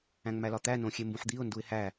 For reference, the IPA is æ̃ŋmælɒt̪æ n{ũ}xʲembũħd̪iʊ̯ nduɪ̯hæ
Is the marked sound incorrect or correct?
incorrect